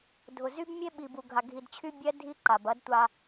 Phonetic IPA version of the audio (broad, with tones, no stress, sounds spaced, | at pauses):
dʱ ʊ˨ z y˦ b mʲ e˦ ɓ i˨ b u˨ ɡʱ a˨ ɡʱ i˨ d t͡ɕʰ y˦ bʲ ɛ˦ dʱ i˦ ǃ a˨ b ɐ˦ d tʷ a˦